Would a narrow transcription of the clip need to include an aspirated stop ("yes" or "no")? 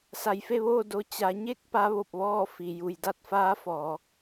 no